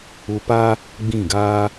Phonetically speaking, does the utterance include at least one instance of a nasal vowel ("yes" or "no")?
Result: yes